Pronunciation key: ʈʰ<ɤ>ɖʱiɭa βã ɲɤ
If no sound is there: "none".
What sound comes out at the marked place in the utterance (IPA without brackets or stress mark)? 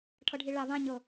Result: ɤ